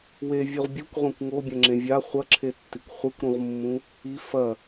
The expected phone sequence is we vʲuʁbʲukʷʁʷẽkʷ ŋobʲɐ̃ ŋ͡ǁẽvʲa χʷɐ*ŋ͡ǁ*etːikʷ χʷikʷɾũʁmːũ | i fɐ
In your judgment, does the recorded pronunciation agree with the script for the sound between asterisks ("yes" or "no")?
no